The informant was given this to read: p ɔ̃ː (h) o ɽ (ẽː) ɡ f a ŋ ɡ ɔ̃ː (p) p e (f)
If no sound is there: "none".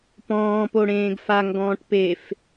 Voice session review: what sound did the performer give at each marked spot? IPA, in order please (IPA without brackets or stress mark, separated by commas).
p, ẽː, ʈ, f